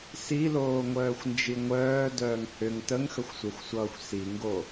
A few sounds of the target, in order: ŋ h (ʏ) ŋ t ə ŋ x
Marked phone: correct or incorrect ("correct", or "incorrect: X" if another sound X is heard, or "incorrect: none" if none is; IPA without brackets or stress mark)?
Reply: correct